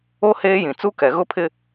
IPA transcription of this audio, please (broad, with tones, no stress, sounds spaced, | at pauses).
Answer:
o˦ h eː˦ j ĩ˨ t͡s u˦ k ɛ˨ ɣ ʊ˦ pʰ ɪ˦